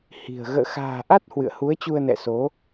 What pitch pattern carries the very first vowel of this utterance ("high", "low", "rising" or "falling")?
low